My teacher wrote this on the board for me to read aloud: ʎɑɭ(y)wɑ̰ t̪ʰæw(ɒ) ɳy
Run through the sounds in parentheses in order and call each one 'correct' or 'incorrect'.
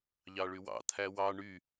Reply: correct, incorrect: ɑ

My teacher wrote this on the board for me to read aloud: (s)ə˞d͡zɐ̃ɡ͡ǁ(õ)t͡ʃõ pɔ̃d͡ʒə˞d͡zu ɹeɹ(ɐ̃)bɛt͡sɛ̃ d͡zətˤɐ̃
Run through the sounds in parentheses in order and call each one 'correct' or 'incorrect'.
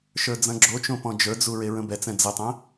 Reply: incorrect: ʃ, incorrect: o, incorrect: ə̃

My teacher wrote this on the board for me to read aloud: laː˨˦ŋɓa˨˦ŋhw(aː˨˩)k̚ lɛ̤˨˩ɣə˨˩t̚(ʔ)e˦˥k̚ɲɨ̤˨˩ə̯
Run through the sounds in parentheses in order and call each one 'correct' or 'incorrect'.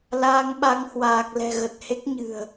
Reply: correct, incorrect: h

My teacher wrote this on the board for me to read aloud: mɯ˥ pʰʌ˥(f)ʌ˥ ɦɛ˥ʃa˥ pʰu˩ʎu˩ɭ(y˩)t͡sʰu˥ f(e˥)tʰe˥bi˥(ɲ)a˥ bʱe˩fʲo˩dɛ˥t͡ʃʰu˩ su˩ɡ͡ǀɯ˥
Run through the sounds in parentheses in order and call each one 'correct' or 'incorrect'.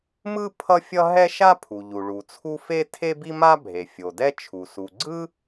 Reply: incorrect: fʲ, incorrect: u˩, correct, incorrect: m

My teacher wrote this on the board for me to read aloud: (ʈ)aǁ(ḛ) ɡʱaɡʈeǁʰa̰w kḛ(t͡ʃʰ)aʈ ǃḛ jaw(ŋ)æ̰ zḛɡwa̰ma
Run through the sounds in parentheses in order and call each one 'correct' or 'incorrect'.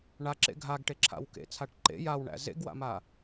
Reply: incorrect: ɳ, correct, incorrect: t͡sʰ, incorrect: ɳ

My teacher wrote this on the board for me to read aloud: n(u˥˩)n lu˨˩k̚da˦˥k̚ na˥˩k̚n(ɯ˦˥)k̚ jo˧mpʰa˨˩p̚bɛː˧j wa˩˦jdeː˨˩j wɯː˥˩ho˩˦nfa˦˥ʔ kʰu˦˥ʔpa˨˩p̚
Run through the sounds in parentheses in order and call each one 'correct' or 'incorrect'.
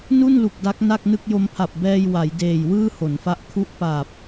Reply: correct, incorrect: ɯ˥˩

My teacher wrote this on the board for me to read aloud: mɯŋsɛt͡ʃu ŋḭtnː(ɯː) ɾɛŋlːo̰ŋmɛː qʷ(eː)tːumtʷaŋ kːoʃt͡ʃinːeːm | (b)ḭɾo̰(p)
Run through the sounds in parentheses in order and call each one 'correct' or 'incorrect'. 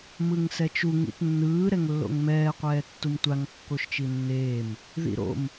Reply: correct, incorrect: ɛː, incorrect: ð, incorrect: m

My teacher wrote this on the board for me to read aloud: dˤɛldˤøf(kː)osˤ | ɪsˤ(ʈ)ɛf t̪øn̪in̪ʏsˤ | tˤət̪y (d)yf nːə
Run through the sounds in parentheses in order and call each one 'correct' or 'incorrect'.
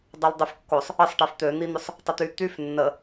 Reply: correct, correct, incorrect: t̪

